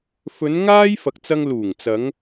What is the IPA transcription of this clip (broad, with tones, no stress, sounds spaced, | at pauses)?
f ɵ˨˧ n ŋ aː˥ j f ɐ˨ k̚ t͡s ɐ˧ ŋ l uː˨˩ ŋ t͡s ɐ˨˧ ŋ